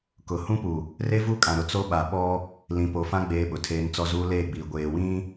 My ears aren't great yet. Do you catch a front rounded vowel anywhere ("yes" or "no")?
no